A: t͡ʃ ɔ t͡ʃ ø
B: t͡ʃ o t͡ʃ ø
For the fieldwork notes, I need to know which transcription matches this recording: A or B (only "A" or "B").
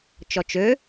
A